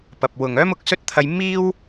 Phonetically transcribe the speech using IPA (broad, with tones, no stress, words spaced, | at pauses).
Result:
pɐ˨p̚wʊ˨ŋœː˥mʊ˨k̚ sɵ˥t̚t̪ʰɐ˧j miː˥w